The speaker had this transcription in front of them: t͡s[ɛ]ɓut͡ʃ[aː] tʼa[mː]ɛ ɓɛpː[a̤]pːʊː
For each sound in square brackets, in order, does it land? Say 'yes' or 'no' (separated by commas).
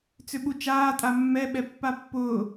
no, yes, yes, no